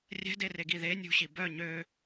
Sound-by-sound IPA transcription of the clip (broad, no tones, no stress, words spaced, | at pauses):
rʲɛ̤dereɡi ðe nʲṳɕi bœ ɲø